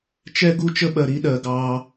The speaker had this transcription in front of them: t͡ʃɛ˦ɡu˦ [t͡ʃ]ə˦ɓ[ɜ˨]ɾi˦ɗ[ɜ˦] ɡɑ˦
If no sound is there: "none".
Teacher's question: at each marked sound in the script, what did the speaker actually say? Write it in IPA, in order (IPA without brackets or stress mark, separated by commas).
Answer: t͡ʃ, ɜ˨, ɜ˨